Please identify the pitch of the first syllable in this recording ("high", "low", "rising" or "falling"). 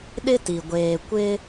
high